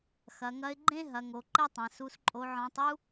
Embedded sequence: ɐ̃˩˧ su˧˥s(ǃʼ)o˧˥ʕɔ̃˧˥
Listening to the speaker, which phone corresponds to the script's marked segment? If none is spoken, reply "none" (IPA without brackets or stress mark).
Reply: ǃʼ